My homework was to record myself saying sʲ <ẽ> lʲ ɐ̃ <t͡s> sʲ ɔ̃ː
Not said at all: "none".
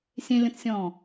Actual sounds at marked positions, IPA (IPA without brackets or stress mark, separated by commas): ẽ, t͡s